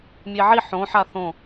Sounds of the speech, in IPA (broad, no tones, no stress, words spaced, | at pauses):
mʲeʕi ħõħa θõ